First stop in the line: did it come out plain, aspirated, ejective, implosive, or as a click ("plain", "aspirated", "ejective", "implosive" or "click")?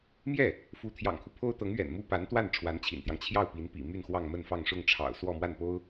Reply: aspirated